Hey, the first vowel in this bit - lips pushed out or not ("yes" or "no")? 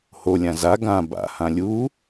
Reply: yes